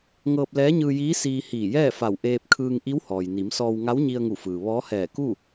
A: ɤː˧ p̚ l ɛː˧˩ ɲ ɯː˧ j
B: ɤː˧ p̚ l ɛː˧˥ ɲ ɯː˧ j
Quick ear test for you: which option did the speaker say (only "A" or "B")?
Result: B